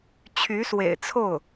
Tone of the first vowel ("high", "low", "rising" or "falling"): rising